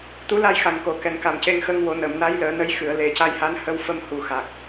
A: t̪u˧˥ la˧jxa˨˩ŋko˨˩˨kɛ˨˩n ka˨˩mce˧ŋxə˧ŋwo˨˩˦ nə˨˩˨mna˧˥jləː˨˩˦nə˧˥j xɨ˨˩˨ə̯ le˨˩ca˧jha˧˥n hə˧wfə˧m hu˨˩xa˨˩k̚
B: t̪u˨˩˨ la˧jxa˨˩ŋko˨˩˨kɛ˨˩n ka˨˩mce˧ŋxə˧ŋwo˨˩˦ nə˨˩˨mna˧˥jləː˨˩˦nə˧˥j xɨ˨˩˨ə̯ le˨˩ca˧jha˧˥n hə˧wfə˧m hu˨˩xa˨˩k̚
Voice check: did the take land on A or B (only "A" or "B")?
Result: A